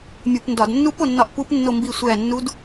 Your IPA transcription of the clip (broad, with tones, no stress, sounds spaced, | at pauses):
mʲ u˧˩˧ p n d ɒ˧˩˧ d nː u˦˥ p o˦˨ nː ɒ˦˨ ʔ p u˦˥ p nː o˦˨ m b i˦˨ sʷ æ˦˨ nː u˦˥ d